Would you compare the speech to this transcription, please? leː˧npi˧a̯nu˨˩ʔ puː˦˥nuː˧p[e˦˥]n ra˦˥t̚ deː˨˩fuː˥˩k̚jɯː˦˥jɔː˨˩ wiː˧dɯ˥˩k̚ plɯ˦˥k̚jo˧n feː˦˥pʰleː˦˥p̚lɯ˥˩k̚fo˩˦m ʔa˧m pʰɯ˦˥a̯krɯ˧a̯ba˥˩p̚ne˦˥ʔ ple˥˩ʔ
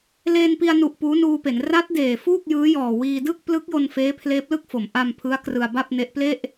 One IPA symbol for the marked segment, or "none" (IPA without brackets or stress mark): e˩˦